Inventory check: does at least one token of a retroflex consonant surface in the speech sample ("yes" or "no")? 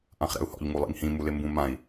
no